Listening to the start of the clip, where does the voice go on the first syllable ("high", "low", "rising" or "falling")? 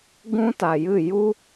high